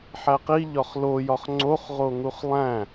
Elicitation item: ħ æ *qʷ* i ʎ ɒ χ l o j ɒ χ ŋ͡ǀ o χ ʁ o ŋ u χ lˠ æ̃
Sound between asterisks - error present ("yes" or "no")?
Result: yes